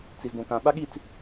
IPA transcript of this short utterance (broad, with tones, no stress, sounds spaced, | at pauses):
t͡s i˨ z b õ˨ k ã˨ ɓ a˦ ɠ i˦˨ t͡s